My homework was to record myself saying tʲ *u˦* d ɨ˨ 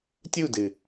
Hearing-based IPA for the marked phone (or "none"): u˦˨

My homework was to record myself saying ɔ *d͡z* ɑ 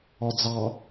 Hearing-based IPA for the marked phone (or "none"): d͡z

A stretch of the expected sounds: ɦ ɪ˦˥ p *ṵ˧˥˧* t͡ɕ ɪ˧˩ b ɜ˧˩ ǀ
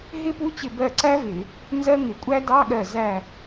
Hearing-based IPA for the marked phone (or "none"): u˧˥˧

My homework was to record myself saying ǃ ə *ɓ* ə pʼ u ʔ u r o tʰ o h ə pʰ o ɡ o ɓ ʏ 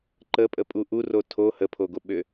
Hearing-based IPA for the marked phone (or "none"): pʼ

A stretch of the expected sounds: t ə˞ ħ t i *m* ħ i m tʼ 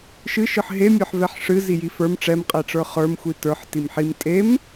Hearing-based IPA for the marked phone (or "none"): m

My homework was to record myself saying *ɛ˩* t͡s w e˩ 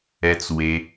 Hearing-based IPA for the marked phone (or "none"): ɛ˩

